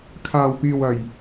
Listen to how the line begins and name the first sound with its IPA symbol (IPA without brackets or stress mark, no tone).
kʰ